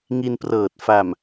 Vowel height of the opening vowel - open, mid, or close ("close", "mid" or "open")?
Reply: close